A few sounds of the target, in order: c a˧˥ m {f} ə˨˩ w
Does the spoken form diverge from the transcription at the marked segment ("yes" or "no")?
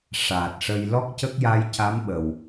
yes